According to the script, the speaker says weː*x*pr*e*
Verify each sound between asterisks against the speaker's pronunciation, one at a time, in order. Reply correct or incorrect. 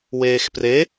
correct, correct

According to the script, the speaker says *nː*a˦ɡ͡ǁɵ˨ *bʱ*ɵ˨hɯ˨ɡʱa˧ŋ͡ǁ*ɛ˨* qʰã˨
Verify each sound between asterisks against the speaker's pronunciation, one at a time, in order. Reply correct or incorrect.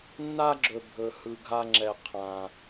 correct, correct, correct

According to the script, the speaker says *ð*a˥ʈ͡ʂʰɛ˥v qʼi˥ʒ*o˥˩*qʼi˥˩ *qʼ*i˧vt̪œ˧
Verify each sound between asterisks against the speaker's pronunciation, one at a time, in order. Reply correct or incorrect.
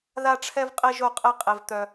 correct, correct, correct

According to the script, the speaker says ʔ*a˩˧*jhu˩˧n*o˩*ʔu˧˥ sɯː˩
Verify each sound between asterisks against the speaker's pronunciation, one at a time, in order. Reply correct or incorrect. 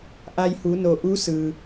incorrect, correct

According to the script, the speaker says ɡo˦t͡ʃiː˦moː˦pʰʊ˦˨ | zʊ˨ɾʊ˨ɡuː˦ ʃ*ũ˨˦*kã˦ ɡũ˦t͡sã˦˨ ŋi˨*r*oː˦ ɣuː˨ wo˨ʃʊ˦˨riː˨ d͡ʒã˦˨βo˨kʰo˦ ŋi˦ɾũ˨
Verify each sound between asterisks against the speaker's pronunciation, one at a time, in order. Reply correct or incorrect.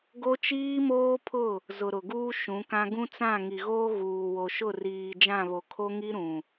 correct, incorrect

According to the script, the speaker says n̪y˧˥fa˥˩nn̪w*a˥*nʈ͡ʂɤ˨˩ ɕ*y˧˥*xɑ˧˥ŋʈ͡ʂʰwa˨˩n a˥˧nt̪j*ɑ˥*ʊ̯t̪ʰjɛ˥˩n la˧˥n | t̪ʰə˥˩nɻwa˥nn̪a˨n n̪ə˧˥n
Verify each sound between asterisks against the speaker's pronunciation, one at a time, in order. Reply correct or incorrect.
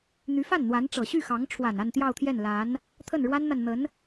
incorrect, incorrect, incorrect

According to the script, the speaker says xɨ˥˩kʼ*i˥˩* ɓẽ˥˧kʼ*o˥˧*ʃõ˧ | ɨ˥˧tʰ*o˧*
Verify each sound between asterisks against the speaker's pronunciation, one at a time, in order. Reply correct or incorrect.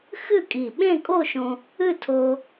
incorrect, correct, correct

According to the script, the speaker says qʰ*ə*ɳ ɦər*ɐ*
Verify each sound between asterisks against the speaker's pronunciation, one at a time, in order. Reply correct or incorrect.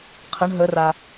correct, incorrect

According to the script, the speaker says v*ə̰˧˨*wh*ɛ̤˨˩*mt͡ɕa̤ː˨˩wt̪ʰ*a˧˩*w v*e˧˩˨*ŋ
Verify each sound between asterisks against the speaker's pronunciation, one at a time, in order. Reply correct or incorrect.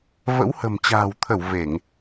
incorrect, incorrect, incorrect, correct

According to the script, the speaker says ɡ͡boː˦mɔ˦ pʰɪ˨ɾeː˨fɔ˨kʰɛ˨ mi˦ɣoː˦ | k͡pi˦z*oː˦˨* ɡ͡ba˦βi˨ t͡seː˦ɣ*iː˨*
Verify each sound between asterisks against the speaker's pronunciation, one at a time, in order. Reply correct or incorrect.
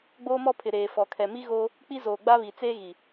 incorrect, incorrect

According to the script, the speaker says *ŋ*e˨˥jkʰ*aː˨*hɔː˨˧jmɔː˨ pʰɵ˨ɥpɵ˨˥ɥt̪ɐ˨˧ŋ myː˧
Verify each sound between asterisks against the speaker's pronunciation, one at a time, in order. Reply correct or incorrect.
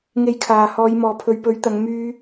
correct, incorrect

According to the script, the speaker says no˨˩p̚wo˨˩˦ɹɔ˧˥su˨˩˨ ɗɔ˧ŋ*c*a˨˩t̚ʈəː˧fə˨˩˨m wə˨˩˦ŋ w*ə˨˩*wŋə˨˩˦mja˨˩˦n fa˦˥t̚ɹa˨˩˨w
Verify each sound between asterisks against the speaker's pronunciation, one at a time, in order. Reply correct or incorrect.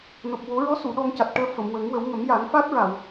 correct, incorrect

